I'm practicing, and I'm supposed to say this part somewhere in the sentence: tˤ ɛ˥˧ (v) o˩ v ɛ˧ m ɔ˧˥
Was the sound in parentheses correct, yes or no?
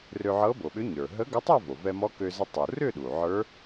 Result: yes